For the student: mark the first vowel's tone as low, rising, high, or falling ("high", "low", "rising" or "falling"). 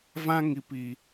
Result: high